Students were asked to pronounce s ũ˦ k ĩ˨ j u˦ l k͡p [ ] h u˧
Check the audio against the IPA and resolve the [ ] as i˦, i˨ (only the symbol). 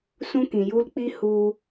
i˦